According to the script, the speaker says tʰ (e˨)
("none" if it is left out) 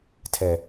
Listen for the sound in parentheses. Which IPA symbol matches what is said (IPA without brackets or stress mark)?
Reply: ɛ˨